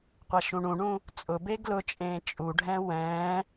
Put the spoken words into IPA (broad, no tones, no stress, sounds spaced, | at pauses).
qʷ a ʃ ũ ɳ ũ ɳ ũ | t͡sʼ ʊ b e ɡ l ʊ t͡ʃʼ ẽː t͡ʃʼ u ɖʱ ɛ̃ w ɛ̃ː